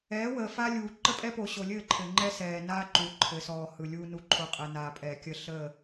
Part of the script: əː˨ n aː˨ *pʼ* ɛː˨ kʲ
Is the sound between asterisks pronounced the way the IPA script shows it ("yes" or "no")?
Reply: yes